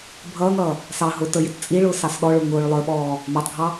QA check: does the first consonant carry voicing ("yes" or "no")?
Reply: yes